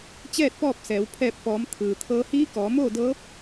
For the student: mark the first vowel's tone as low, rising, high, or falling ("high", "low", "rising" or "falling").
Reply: falling